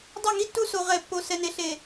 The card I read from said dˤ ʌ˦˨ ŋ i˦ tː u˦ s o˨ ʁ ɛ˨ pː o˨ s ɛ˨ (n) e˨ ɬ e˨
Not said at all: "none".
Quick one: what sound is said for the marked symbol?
n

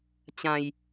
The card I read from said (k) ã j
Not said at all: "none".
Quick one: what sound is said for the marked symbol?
t͡ɕ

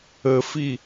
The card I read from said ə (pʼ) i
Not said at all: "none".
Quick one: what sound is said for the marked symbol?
f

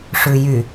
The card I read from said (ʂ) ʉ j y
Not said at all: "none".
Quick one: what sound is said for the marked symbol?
ʂ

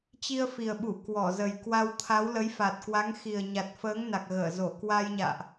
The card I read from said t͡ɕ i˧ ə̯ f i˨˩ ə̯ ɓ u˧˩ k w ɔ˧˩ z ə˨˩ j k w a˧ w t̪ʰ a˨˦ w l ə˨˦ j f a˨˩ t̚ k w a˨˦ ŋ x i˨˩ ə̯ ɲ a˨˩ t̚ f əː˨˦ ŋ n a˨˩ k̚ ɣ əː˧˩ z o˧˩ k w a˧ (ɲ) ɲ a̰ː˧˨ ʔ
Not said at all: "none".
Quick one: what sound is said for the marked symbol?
j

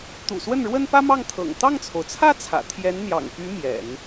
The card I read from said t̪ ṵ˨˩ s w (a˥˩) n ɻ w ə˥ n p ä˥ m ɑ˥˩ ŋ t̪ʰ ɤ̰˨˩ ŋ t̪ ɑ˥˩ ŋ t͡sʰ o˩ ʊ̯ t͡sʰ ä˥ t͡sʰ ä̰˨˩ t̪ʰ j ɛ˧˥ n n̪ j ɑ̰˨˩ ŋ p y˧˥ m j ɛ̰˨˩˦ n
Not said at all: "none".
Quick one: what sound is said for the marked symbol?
ə˥˩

